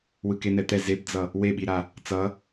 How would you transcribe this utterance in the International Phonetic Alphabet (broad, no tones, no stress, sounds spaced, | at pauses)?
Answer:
w ɯ k e n̪ ɛ t̪ ɛ z e b d͡z ʌ | w e ɓ i ɾ a | t͡s ʌ